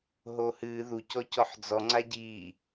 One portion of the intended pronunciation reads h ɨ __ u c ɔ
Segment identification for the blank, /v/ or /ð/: ð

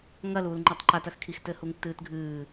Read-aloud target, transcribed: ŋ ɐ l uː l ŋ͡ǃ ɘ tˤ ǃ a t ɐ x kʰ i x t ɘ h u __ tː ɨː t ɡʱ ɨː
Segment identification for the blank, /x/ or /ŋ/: ŋ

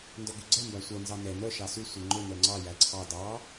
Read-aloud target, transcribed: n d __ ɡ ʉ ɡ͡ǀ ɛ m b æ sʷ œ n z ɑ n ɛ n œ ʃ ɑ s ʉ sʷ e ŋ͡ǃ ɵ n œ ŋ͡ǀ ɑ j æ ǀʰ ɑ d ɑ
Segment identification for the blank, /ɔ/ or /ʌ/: ɔ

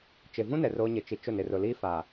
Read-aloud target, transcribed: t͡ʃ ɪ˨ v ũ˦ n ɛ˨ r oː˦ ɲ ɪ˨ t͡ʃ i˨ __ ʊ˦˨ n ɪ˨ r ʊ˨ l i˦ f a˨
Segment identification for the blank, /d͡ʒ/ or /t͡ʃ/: t͡ʃ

